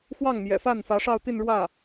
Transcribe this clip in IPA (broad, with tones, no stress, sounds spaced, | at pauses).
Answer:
x w ɑ˥˩ ŋ m j ɛ̰˨˩ f a˥˩ n f ä˧˥ ʂ ɑ˥˧ ʊ̯ t̪ i˥˧ n ɻ w ä˥˩